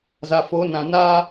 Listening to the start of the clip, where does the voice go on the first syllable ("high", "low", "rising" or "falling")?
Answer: low